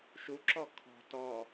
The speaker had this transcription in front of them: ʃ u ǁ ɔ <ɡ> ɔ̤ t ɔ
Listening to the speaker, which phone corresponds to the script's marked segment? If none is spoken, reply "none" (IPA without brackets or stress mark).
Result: kʰ